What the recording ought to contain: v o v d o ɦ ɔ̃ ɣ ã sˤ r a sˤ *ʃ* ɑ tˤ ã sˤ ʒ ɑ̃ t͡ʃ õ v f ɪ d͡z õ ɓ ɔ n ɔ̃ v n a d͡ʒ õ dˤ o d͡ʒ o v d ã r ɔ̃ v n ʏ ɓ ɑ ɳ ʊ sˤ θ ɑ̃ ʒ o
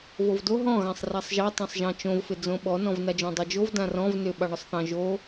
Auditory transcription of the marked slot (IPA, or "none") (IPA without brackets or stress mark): ʒ